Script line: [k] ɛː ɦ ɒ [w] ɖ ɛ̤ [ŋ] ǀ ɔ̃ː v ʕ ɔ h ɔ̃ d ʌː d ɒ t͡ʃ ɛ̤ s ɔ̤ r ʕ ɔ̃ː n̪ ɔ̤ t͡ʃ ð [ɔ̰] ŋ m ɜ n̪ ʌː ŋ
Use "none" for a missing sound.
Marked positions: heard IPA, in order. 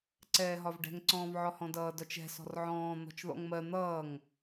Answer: ǀ, v, ŋ, ɔ̰

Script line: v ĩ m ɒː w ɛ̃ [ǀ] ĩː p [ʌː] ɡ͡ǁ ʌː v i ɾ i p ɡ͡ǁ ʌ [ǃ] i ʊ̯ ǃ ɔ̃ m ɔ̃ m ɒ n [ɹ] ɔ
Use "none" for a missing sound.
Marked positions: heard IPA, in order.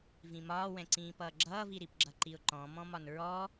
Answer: ǀ, ʌː, ǃ, ɹ

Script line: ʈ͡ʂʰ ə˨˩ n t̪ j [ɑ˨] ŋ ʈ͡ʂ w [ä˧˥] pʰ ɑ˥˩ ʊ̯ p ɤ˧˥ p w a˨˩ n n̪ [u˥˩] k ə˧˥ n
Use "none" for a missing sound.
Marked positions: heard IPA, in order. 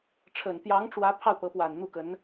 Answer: ɑ˧˥, ä˧˥, u˥˩

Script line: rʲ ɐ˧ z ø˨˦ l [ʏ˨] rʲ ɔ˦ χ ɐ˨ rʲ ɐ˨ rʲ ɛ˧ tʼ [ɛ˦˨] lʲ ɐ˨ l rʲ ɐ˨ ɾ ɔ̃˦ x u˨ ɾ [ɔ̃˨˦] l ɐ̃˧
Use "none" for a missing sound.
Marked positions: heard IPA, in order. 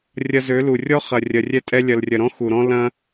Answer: u˨, ɛ˧, ɔ̃˦

